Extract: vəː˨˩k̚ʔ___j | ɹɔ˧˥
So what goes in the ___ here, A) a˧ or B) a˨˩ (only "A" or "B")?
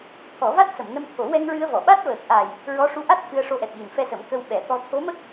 B